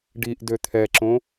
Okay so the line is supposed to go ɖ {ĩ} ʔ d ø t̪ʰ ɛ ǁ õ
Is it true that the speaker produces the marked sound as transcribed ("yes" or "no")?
no